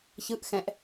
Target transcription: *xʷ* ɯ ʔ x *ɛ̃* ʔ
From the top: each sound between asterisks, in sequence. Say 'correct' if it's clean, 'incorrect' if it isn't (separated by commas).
incorrect, correct